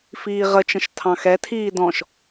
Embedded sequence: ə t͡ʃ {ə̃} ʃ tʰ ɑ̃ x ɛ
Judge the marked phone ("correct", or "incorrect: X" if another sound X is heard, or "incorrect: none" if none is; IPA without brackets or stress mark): correct